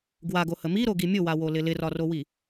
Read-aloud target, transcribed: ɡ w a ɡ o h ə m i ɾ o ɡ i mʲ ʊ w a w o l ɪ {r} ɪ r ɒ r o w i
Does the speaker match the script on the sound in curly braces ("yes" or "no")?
no